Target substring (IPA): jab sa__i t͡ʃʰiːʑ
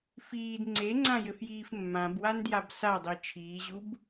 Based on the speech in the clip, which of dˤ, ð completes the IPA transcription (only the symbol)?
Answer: dˤ